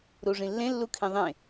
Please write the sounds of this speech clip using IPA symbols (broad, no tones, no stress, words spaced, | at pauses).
ɾuʐĩlːẽ lːukʰĩðˤẽ